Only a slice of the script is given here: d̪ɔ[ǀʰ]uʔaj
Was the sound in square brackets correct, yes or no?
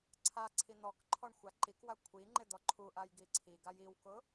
no